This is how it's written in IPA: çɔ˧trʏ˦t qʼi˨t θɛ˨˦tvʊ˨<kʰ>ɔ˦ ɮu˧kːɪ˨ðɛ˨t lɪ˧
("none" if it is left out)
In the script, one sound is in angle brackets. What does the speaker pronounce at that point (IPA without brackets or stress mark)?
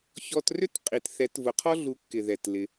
qʰ